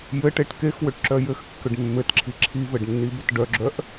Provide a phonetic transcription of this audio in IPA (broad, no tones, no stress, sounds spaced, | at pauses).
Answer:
j ɘ ʈ e ʈ k e x w ʏ ʈ ǁ œ j ɘ x kː ʏ ɖ mː ɘ t ǁʰ i ǁʰ i v ɘ ɖ nː i b ʏ t ɖ œ ɡ͡ǁ œ ʔ